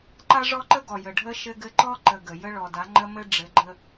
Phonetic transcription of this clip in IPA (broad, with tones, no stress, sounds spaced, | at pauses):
ǃ a˦ ʐ ɔ˦ ǃ ə˦ ɡ ɔ˨ j ə˨ ɖʱ ə˦ ʃ ɘ˦ ɡ ɘ˦ ǃ ɔ˦ ǃ ə˨ ɡ ə˨ j ə˦ ɭ ɔ˨ d a˨˦ ŋ͡ǃ ə˦ m ɘ˦ ɖ͡ʐ ɘ˨˦ ɡ͡ǃ ə˦